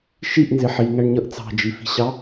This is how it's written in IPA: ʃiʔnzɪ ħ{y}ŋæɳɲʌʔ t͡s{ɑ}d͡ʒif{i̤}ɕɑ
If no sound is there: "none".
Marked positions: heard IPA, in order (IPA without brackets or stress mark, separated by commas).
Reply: i, ɑ̤, i̤